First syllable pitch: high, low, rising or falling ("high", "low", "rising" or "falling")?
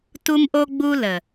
high